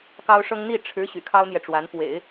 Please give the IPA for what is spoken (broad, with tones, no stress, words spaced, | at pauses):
kɑ˥ʊ̯ʂɤ˥ŋ n̪i˥˩ ʈ͡ʂʰɻ̩˧˥ ɕy̰˨˩kʰɑ˥ʊ̯n̪jɛ˨ʈ͡ʂwa˧˥n pwḛ˨˩˦ɪ̯